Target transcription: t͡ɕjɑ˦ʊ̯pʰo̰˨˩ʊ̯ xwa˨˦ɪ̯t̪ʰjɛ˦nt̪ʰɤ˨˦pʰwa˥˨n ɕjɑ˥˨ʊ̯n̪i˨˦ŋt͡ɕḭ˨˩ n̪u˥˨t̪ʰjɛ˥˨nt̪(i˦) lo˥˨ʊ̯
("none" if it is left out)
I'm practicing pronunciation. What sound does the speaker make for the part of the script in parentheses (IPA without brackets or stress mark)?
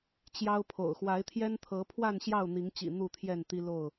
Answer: i˦